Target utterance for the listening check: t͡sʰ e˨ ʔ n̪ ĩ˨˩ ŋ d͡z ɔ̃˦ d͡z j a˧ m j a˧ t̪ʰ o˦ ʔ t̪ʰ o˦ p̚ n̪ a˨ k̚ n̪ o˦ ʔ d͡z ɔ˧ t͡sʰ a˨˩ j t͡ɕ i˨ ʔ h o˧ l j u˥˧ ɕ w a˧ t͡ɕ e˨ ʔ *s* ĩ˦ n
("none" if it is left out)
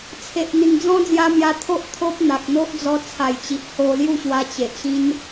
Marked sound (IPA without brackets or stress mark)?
ɕ